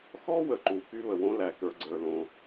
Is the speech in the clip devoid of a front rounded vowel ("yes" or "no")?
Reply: no